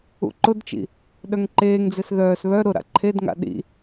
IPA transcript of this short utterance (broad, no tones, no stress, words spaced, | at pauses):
ṵǃʊdt͡ʃḭ | ɗœŋǃeːŋd͡zes ðœːs βœ ɾʊɾa̰ ǃʰedŋa̰ ɗḭ